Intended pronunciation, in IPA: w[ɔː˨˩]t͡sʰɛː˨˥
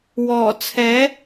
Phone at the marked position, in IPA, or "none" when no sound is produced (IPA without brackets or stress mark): ɔː˨˩